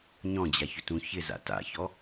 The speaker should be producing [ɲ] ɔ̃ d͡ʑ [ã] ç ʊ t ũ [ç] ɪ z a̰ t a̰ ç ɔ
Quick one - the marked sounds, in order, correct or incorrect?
correct, incorrect: a, correct

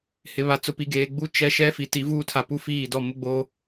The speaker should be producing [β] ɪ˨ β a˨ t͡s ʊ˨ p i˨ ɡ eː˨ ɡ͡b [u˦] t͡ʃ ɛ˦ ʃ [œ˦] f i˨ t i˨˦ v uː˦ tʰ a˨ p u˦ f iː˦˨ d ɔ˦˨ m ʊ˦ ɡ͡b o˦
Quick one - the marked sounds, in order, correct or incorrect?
incorrect: h, correct, incorrect: ɛ˦

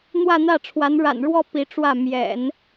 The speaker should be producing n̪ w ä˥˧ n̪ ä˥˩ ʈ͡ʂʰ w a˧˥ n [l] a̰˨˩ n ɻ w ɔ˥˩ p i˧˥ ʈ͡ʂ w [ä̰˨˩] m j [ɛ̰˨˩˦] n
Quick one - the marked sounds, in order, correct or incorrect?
incorrect: ɻ, incorrect: ä˥˩, correct

